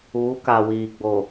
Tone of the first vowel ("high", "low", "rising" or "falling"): rising